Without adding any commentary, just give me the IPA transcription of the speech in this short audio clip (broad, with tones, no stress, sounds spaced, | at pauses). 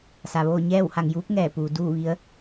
s a˩ ʋ oː˥˨ ɲ ɛː˥˨ w h a˧˩ ŋ j uː˧˥ p̚ ŋ ɛː˧˩ p uː˩˧ d uː˥˨ ʋ i˧˥ ə̯